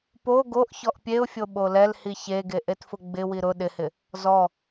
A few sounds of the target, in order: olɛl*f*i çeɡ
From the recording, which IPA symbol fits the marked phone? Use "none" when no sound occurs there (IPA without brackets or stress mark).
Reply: h